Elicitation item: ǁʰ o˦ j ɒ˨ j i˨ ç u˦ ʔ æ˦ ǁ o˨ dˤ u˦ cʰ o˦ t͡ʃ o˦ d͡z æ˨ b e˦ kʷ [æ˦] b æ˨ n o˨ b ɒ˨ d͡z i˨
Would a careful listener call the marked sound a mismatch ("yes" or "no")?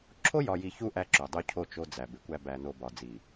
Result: no